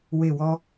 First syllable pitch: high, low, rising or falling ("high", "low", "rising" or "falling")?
falling